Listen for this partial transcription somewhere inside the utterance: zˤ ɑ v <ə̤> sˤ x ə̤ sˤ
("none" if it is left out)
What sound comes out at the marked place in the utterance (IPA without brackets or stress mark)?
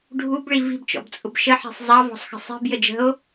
ɔ̤